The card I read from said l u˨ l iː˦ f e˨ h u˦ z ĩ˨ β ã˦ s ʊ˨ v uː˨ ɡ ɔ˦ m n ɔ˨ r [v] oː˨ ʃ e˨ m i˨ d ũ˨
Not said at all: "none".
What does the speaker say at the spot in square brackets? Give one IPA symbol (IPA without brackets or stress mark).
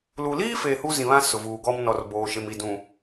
b